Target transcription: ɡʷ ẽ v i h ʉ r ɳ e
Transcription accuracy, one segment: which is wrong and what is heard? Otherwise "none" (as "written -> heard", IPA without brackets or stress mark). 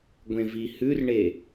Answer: none